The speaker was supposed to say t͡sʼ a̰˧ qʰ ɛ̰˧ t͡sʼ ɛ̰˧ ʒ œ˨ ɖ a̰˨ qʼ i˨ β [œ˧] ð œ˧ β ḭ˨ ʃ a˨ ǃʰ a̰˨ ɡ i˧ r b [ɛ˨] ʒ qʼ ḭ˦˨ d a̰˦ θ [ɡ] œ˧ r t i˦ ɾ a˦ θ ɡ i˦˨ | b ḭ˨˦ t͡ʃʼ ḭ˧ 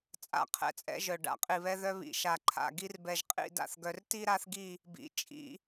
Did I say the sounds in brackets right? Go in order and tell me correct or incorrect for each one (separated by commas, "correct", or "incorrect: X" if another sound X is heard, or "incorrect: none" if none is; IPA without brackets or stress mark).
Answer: incorrect: ɛ˧, correct, correct